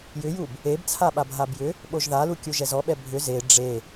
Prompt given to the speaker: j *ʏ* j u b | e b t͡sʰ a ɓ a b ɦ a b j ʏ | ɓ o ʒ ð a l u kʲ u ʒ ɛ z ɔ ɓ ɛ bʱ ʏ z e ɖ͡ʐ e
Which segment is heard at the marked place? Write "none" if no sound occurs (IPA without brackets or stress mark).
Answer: ʏ